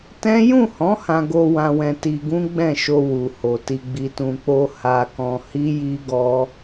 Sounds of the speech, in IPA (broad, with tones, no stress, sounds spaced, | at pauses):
t ɛ̃˦ j ũ˦˨ h ɔ̃˨˦ h ã˧ ɡ o˧ w ã˧ w ɛ̃˧ t i˧ ɡ ũ˦ ɡ͡b ɛ̃˦˨ ʃ o˧ w u˨ h o˨ t i˨ ɡ͡b i˨ t ũ˨ k͡p o˧ h a˧ k ɔ̃˧ h i˦ j i˦ ɡ ɔ˦